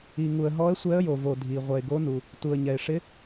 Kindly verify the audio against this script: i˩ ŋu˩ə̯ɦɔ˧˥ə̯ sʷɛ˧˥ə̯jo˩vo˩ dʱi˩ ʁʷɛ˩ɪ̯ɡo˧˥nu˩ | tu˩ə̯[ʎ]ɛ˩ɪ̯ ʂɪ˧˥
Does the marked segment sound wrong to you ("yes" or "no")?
yes